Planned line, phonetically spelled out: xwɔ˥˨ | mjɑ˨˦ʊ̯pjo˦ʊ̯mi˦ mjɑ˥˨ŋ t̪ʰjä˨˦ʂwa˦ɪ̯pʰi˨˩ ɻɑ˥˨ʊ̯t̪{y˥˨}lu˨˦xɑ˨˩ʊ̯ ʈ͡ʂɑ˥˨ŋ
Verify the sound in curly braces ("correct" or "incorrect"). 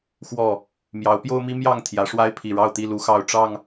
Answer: incorrect